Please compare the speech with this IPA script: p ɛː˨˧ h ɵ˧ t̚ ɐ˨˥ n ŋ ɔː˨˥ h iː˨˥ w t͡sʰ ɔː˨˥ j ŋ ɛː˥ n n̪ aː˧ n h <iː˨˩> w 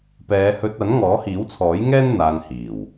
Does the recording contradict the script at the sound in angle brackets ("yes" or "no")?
no